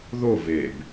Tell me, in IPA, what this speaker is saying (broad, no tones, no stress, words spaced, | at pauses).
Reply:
ðo veb